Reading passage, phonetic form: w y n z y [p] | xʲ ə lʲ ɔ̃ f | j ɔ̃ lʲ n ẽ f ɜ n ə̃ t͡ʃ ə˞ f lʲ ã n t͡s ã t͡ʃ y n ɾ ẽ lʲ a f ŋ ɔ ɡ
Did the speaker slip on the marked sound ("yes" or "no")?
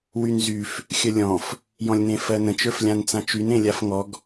yes